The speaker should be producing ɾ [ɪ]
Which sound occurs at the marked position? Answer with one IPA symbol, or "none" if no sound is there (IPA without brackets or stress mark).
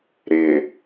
ɪ